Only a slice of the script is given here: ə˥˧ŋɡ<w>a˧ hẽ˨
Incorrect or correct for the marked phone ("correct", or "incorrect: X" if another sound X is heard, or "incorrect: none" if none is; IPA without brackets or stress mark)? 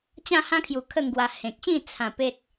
correct